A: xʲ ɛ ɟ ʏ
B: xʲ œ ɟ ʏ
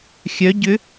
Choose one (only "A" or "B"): B